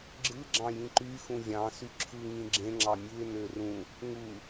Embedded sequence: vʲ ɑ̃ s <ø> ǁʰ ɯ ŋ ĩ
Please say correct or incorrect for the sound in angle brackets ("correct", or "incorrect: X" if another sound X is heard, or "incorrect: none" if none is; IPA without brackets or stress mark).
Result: incorrect: y